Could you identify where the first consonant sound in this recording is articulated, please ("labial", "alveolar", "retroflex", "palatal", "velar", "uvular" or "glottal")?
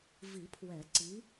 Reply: labial